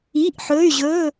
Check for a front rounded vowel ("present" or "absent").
present